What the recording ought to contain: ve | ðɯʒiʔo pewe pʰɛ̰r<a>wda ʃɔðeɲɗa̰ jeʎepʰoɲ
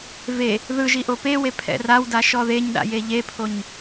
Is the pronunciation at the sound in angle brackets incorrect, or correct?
correct